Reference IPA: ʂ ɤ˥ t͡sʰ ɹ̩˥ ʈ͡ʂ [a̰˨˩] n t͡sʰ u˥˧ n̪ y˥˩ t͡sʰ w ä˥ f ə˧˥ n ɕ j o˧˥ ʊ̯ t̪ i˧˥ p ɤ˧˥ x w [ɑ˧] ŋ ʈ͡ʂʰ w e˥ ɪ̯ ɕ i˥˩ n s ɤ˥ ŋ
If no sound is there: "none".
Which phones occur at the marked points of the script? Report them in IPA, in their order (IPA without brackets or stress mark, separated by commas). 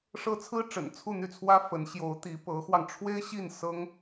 ə̰˨˩, ɑ˧